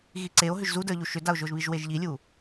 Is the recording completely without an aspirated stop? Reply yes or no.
yes